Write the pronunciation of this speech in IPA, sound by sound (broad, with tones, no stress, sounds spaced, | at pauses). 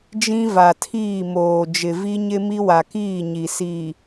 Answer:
d͡ʒ ĩ˦ v a˨ tʰ iː˦˨ m oː˨ d͡ʒ ɪ˨ v i˦ ɲ ɪ˦ m i˦ w a˨ k iː˦˨ ɲ i˨ s iː˨